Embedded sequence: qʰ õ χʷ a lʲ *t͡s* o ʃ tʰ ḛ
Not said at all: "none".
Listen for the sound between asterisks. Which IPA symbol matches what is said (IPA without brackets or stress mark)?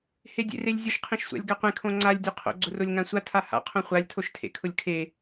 tʰ